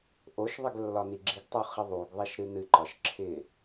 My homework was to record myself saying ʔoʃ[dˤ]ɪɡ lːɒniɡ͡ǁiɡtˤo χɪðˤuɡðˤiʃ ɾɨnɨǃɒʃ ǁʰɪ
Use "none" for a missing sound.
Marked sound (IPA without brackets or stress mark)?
ðˤ